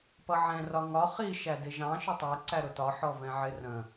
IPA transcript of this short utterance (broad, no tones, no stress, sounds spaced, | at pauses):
p ʌ ʕ ɛ̃ r ɒ ŋ ɒ χ i ʃ æ d ɪ ʒ ɑ̃ ʃ ʊ tˤ æ ǀ æ ɾ ʊ t ɒ ħ ɔ v ɛ̃ ʕ ɪ r ə̃